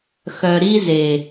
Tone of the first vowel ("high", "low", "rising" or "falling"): low